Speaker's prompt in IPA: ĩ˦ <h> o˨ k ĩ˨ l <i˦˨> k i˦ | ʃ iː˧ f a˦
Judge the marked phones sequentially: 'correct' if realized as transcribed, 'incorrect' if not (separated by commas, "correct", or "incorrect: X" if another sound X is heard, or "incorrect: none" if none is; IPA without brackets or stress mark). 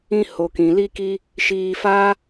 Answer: correct, incorrect: i˦